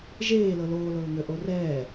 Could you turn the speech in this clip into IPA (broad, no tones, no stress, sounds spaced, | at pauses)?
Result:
ʒ eː l ɤ l oː l ɤː ŋ ø ʔ o r ɛː